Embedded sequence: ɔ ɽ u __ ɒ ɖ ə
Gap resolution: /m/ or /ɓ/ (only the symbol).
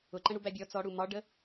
m